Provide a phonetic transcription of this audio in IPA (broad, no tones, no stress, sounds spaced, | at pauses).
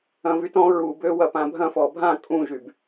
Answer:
ɐ̃ v y t ɔ̃ ɹ u b ø w ɐ p ã bʱ ɐ̃ f ɔ bʱ ã kʼ ũ ʒ y b